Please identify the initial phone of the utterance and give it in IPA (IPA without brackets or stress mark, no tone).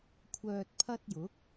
kʷʰ